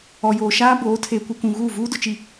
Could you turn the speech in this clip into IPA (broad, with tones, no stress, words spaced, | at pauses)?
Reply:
ɔ˨joː˨ ʃaː˦ boː˨˦ tʰeː˨kʷi˨kʷũ˨ ɣuː˦˨vuː˦dʊ˨t͡ʃi˨